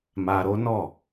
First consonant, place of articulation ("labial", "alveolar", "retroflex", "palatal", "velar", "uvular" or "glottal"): labial